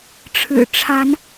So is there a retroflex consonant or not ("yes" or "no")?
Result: yes